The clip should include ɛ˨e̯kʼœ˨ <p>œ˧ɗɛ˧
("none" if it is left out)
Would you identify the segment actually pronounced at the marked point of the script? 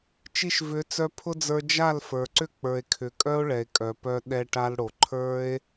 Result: p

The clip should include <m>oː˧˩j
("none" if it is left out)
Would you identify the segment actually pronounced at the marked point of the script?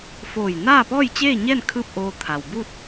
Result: f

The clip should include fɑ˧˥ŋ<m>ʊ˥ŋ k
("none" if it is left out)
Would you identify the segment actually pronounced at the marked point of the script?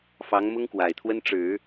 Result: m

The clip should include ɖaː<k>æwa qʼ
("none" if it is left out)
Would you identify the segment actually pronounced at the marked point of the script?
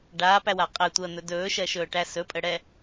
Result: p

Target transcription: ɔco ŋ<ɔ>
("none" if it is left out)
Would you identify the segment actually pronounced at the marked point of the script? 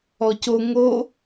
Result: o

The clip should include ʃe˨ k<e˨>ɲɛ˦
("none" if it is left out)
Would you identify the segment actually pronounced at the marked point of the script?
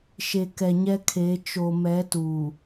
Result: ɛ˨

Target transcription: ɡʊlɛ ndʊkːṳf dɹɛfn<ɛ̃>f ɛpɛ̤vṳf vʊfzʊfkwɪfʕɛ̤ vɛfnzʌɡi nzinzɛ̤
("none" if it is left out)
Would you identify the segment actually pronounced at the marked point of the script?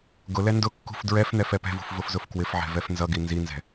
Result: ɛ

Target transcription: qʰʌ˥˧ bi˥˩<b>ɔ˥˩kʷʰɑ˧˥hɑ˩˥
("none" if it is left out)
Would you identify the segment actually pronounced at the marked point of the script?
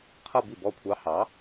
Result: b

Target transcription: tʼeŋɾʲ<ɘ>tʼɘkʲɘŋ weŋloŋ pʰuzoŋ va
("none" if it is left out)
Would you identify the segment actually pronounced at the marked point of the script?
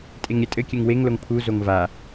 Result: ɘ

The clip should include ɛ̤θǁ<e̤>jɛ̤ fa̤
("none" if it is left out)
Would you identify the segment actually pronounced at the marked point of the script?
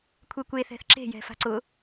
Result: e̤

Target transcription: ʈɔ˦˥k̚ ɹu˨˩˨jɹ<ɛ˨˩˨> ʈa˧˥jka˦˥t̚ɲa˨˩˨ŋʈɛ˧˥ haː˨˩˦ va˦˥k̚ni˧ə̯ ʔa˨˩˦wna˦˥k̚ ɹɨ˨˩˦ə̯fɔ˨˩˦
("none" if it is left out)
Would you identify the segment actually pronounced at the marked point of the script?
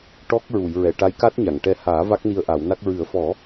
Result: ɛ˨˩˨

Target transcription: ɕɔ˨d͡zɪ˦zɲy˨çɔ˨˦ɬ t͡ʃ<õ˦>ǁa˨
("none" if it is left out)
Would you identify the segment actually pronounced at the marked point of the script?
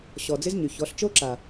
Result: o˦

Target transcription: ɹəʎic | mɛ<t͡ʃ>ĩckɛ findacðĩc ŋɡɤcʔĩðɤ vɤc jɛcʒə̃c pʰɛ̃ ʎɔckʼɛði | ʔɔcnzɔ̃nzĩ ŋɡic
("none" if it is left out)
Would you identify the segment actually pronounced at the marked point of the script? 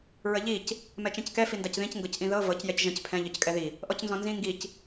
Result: t͡ʃ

